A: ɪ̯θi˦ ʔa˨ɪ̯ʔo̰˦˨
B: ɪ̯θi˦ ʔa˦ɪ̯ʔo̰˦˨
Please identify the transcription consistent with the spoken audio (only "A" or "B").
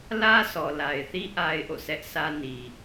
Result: B